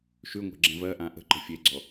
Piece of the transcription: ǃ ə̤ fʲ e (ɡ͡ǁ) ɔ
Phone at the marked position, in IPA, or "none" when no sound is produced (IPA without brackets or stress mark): ɡ͡ǀ